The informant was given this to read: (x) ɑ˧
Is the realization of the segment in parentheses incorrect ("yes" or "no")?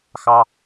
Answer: no